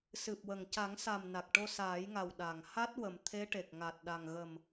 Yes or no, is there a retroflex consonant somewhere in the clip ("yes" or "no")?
yes